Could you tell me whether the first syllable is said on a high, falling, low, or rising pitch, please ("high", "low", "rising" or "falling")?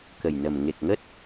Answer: low